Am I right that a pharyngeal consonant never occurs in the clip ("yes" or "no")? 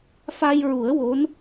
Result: yes